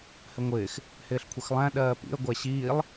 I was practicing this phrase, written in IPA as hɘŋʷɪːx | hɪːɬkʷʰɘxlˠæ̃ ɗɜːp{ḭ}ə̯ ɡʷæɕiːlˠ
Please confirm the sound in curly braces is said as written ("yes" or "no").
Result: yes